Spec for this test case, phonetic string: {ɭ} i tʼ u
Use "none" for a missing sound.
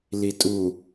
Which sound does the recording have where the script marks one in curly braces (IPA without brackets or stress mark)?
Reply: l